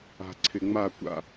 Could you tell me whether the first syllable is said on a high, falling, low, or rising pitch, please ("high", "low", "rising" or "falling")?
low